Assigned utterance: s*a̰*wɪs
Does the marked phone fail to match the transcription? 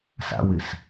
no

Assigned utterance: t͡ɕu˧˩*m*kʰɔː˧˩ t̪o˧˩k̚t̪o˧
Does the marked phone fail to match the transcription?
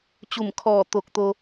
no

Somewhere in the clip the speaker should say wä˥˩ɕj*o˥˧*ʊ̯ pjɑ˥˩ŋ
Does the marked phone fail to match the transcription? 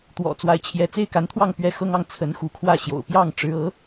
yes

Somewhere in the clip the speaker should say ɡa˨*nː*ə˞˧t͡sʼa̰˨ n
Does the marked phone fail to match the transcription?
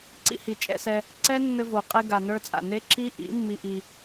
yes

